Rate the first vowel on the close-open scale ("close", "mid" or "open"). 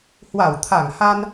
open